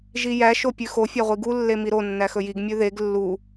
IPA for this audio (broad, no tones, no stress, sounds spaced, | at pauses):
ʒ i j æ ʃ o pʲ ʉ x o fʲ æ ʁʷ i ɡ u lː e m i ɾ o nː æ x ɵ j i ɡ mʲ ʉ ð e ɡ lː u